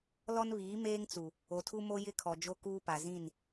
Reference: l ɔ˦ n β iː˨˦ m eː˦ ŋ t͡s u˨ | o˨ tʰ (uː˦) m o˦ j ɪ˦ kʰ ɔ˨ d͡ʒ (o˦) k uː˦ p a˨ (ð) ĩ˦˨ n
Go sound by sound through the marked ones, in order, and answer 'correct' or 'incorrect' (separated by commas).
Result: incorrect, correct, incorrect